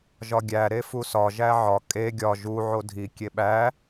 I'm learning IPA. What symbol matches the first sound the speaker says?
ʒ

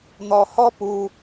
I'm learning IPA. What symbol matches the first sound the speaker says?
n̪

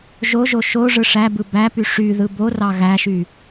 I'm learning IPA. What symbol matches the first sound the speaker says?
ʒ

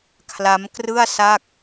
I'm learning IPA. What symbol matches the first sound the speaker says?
kʰ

